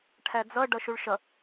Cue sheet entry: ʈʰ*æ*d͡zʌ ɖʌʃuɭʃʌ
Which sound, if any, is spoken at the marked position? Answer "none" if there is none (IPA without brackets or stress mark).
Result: æ